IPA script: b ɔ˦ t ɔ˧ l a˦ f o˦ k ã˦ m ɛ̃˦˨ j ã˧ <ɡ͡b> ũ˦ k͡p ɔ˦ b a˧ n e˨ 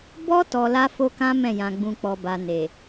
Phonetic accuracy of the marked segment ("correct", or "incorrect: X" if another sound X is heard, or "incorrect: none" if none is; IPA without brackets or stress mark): correct